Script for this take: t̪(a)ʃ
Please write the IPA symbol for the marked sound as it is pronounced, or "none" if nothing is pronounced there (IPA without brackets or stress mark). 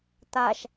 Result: a